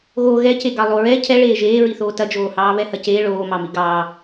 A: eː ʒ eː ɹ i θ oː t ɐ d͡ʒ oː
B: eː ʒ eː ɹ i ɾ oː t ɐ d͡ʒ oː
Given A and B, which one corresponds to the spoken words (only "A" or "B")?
A